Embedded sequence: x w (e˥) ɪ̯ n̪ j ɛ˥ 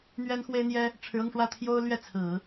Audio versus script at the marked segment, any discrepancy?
no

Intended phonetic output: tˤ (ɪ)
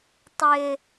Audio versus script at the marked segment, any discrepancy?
no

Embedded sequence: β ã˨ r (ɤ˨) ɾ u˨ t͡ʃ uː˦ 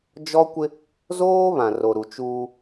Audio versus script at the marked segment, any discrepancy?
yes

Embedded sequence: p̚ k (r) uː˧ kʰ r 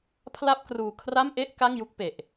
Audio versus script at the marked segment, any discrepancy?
no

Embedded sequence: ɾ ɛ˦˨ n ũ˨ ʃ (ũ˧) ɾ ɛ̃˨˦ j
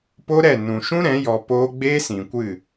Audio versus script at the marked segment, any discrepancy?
yes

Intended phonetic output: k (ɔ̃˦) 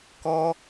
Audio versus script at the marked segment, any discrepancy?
yes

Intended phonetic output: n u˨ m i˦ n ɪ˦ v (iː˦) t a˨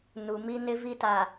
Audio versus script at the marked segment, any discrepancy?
yes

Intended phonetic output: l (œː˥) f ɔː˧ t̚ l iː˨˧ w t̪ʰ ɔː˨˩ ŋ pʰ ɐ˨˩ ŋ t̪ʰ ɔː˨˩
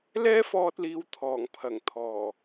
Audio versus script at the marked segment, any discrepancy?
yes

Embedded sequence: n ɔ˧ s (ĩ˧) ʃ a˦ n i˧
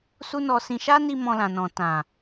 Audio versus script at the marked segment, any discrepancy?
no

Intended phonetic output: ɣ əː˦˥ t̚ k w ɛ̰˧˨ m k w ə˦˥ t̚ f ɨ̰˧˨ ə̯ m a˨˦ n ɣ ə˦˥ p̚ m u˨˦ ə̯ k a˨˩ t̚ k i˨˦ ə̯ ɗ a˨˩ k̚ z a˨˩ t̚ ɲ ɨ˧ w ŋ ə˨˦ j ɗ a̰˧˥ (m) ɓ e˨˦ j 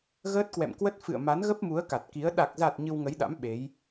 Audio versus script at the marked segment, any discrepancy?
no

